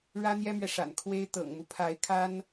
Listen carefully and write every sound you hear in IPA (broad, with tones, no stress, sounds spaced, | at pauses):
ɻ ä˥ n̪ j ɛ˥ m ɥ ɛ˨ ʂ a̰˨˩ n kʰ w e˥ ɪ̯ t̪ ɤ̰˨˩ ŋ m u˦ pʰ a˧˥ ɪ̯ kʰ a˥ n